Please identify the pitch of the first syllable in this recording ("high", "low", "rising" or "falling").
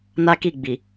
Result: high